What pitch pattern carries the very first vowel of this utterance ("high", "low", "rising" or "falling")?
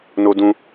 high